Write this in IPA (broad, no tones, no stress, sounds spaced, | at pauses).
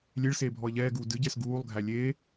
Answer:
lʲ e ɭ s eː bʱ ɔ ə̯ ʎ ɛː ɡ uː d ɨ ɟ ɛ s ɡ uː lˠ ɡʱ æ lʲ eː